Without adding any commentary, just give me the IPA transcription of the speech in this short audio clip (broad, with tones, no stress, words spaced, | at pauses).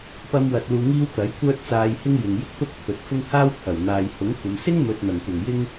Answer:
pɐ˥mwɐ˧t̚luː˧ŋiː˥w t̪ɐ˨˥jkʷœː˥t̚ t͡saː˧jhɪ˥ŋ jɪ˨ŋjɪ˥k̚t̪ʊ˥k̚ pʰɵ˨t̚ fʊ˥ŋ haː˥wpʰɐ˨˩wn̪aː˨j hʊ˨˥ŋkʷɐ˨˧m sɪ˥ŋmɵ˨t̚n̪ɐ˨˩ŋkʷɐ˨˩ŋ jɪ˥ŋ